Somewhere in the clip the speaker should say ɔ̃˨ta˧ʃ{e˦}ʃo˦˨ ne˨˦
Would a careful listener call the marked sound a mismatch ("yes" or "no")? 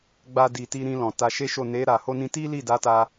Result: no